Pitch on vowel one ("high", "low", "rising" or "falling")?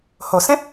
low